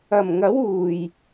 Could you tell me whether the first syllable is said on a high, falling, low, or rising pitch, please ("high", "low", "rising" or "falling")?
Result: low